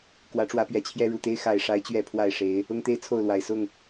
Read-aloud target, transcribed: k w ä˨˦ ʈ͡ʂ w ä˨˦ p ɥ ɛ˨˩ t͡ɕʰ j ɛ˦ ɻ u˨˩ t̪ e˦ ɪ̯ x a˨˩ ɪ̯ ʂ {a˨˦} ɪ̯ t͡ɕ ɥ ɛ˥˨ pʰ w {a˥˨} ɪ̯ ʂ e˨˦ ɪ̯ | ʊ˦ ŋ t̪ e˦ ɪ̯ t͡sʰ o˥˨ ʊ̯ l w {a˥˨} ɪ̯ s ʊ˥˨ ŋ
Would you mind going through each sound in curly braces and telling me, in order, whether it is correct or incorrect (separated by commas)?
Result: correct, correct, incorrect